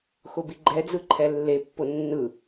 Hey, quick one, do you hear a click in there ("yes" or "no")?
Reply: yes